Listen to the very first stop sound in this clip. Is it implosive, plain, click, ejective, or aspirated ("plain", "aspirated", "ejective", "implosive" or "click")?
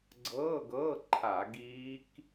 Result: click